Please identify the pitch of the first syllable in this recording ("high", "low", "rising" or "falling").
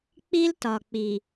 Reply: high